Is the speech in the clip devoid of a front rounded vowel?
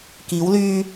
no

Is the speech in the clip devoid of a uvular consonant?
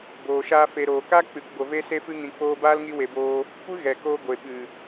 yes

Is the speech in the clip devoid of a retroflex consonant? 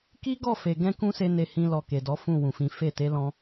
yes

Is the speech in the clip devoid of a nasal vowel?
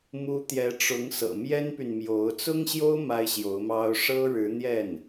yes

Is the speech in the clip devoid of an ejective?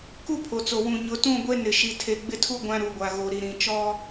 yes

